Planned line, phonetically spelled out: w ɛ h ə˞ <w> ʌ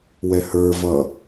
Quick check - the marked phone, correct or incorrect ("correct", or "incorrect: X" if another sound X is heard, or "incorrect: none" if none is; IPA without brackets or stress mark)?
incorrect: v